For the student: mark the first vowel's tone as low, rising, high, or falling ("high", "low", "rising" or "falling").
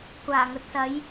low